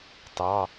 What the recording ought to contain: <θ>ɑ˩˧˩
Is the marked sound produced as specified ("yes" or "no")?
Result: no